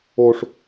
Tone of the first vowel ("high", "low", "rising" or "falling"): high